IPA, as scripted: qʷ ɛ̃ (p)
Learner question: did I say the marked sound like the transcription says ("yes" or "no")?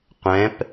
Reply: yes